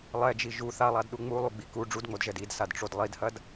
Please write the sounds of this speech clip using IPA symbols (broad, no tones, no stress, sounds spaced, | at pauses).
lˠ ɛ d͡ʒ i ʒ u θ a lˠ a d ɗ u ŋ͡m u lˠ u ɡ͡b i k u ɖ͡ʐ u d ŋ͡m o d ʒ ɛ d i d s a d ʈ͡ʂ o d lˠ i d h ɐ d